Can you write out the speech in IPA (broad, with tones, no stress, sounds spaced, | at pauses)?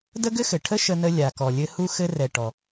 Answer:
d ə˥ ɡ ɘ˥ x ɘ˩ ʈʰ ə˥ ʃ ə˧ n ə˧ lʲ a˩ k ɔ˩ lʲ ɘ˧ h u˧ x ɘ˧ r ɛ˩ ʈ ɔ˩